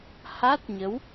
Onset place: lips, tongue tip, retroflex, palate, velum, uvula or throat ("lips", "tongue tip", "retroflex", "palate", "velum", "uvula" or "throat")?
throat